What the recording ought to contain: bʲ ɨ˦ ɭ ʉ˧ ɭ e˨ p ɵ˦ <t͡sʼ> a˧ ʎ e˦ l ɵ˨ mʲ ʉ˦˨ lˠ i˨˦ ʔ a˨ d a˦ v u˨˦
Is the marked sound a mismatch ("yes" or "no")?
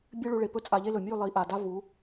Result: no